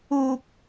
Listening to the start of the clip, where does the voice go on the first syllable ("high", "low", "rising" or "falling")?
high